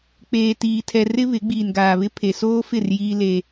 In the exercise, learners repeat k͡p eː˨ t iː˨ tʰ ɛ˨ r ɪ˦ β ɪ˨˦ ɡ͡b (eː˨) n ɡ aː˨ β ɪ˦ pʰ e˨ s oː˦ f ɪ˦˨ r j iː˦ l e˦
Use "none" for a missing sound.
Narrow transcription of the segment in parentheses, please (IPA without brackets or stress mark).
iː˨